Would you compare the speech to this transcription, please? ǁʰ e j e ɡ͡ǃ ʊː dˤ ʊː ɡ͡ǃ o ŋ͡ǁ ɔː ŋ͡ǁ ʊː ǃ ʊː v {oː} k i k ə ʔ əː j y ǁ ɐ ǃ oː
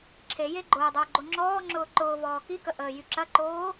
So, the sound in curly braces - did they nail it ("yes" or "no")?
no